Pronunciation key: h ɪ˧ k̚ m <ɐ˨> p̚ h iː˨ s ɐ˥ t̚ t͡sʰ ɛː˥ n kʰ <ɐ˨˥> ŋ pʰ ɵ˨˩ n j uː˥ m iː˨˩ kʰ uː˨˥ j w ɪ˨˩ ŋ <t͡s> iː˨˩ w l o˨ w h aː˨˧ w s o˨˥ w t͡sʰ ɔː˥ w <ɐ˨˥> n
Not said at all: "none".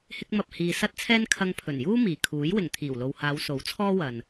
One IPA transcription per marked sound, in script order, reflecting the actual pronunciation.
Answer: ɐ˨, ɐ˧, t̪ʰ, ɐ˨

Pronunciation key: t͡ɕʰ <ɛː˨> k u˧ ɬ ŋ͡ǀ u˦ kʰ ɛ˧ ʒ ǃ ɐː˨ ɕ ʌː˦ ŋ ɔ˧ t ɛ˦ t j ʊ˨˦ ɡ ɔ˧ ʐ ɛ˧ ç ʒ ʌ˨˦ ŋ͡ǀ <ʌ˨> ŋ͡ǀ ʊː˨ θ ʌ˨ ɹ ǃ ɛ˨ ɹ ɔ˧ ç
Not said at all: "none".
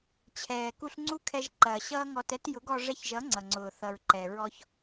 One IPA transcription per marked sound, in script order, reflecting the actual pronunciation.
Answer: ɛː˨, ʌ˨

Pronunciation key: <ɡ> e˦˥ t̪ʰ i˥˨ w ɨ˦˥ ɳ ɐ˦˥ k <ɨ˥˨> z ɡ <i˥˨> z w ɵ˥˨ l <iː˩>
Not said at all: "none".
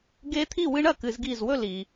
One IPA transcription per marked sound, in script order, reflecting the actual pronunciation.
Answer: ɡ, ɨ˨˥, i˥˨, i˩

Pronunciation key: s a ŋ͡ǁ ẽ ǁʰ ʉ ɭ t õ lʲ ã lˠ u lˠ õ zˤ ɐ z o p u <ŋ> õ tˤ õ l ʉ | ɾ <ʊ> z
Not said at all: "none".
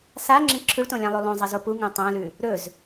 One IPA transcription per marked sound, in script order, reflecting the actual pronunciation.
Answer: ŋ, ɵ

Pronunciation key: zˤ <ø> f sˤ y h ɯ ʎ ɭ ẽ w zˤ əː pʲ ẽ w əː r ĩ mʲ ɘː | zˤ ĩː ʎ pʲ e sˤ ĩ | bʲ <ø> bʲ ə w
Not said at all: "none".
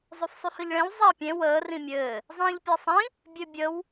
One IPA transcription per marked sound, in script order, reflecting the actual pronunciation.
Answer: ø, ø

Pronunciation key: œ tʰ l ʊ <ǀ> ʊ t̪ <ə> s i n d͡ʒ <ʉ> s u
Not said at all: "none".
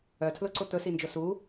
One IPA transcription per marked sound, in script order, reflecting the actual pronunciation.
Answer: ǀ, ɵ, ʊ

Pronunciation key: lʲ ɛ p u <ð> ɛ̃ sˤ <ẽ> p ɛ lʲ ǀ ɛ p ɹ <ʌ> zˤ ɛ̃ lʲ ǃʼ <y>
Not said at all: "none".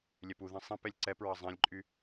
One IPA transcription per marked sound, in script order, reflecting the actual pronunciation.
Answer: ð, ĩ, ʌ, y

